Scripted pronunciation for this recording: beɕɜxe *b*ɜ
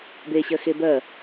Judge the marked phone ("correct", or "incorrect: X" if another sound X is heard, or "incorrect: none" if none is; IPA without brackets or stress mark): correct